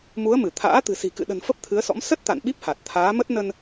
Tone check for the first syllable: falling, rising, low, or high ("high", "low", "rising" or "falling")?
rising